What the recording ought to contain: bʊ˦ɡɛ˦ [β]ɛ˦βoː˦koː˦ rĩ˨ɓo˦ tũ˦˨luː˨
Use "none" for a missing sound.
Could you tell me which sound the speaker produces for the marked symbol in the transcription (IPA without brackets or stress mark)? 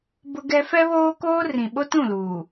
f